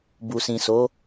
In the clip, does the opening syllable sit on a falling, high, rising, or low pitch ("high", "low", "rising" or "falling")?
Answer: low